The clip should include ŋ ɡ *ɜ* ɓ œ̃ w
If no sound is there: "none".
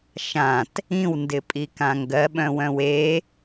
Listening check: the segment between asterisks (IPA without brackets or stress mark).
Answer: ɜ